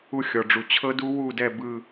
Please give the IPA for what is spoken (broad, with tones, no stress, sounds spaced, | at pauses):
u˦˨ xʲ ɔ˨ ɖ͡ʐ u˨ t͡ɕʰ ɤ˦ d u˦ w u˦˨ d ɛ˦˨ b ɯ˦